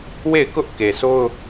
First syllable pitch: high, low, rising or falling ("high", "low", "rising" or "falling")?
falling